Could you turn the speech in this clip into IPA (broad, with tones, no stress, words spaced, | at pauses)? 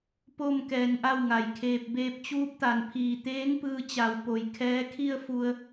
po˥˨m kɛː˧nʔa˥˨wŋa˩jkʰeː˧p̚ beː˧p̚t͡ɕuː˧˥p̚t̪a˩npʰiː˧˩ t̪eː˧˥ŋpɯː˧t͡ɕa˩˧w po˩jkʰɛː˧˥ kʰi˥˨ə̯fu˧ə̯